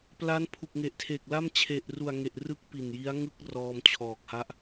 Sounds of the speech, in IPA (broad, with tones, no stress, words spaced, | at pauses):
pla˦˥npʰu˨˩k̚ŋe˨˩ʔtʰe˨˩k̚ la˥˩mt͡ɕʰe˨˩ʔru˨˩a̯ŋe˨˩ʔ rɯ˥˩k̚pi˨˩nji˦˥a̯ŋɯ˥˩k̚ rɔː˧mt͡ɕʰɔː˨˩k̚ha˦˥ʔ